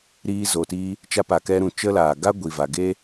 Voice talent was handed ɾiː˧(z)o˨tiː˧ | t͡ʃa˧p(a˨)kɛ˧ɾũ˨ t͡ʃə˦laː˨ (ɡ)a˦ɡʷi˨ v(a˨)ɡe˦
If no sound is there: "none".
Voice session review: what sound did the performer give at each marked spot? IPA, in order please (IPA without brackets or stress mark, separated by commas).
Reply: z, a˨, ɡ, a˨